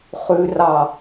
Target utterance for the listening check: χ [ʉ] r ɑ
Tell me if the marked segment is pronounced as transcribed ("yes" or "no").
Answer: yes